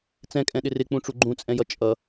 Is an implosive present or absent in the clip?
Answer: present